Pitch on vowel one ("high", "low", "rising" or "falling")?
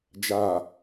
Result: low